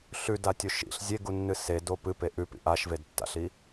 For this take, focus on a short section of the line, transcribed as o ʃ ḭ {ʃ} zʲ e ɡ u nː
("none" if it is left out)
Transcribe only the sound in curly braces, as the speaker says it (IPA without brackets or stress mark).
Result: ɬ